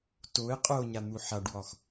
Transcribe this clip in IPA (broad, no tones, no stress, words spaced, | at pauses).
toɪ̯ qʼoɲan̪u ħaɖwɒx